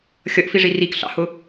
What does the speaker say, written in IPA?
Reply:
xʲ ʌ ʔ f i ʐ i r i k ɬ ɑ̰ h ʊ

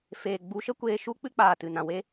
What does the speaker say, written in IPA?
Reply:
f eː˨ ɡ͡b u˨˦ ʃ ə˦ kʷ eː˧ ʃ u˦ k͡p ɨ˦ k͡p aː˨ t ɨ˨ n ã˨ w e˦

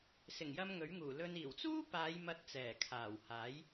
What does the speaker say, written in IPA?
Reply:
s ɪ˨˩ ŋ j ɐ˧ m ŋ ɵ˨˥ ɥ ŋ uː˨˩ l ɵ˧ n iː˨˩ w t͡s uː˥ p aː˨˧ j m ɐ˧ t̚ t͡s ɛː˨˩ kʰ aː˨˩ w h aː˨˥ j

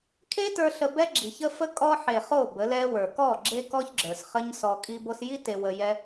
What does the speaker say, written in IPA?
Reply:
kʰ e˦ t ə˞˧ ɬ ə˧ b ɛ˦ ɡ͡ǁ i˨ ç ə˦ f ə˦ kʼ ɔ˦ ħ e˨ χ o˦˨ b ə˨˦ l ɛ˦ w ə˞˨ k ɔ˦˨ ɡ͡ǁ e˦ k ɔ˦ ç ɡ͡ǁ ə˞˨ s χ ə˦ ɲ s ɔ˧ kʼ i˧ b o˧ s j i˦ t e˧ w ə˧ j ɛ˦

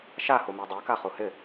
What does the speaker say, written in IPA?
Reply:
ʃ a h u m ɛ dˤ ɛ k a χ u h ɪ

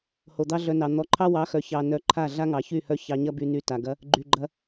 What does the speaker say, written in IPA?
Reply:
h o˨ d̪ ɑ˦ ɮ œ˧ n ɑ˨ n̪ ɔ˨˦ ǃʰ ɑ˦ w ɑ˨˦ x œ˨ ç ɑ˨ n œ˧ ǃʰ a˦˨ ɮ a˦ ŋ ɑ˨ ç y˦˨ h œ˦ ç ɑ˧ ɲ ɐ˦ b y˧ n y˧ t a˨ ɡ ɐ˧ | ɡ͡ǃ y˨ ɡ͡ǃ ɐ˧

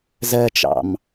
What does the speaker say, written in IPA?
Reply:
z ɜ t͡ʃ ɑ̰ m

